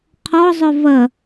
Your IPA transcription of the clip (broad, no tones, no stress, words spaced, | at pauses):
qʰɔzˤœ vɐ